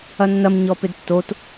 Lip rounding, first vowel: unrounded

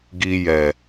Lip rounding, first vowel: unrounded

